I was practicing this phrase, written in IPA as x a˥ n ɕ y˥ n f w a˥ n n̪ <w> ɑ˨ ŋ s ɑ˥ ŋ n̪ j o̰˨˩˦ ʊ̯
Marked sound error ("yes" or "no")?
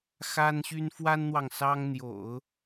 no